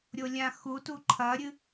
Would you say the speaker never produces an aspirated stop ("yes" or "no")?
no